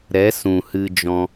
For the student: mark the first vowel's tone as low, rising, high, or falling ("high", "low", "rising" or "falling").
rising